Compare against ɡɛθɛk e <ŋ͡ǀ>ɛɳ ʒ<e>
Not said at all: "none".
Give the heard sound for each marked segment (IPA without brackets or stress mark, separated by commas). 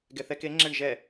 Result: ŋ͡ǁ, ɛ